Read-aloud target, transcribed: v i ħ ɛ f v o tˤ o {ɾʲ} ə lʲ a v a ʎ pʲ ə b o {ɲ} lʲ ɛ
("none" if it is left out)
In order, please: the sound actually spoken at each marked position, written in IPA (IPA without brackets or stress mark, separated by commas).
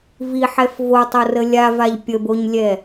r, ɲ